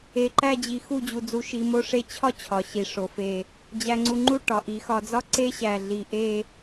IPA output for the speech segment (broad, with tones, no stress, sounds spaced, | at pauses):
e˧˩ ǃ æ˥˧ d͡ʑ i˧ x u˥˧ d͡ʑ u˧ d͡z u˧ ʃ i˧ m o˥˧ ʂ e˥˧ t͡ɕʰ ɒ˥ t͡ɕʰ ɒ˩˧ ɕ i˩˧ ʂ o˩˧ f e˧˩ | d͡ʑ æ˧ ŋ͡ǀ u˧ ŋ͡ǃ u˥˧ ʈ ɒ˩˧ ʔ i˩˧ x ɒ˧ d͡z ɒ˥ ǀ e˥ ɕ æ˧˩ ɮ i˧˩ ʔ e˥˧